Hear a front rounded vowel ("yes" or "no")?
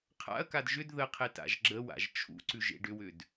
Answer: yes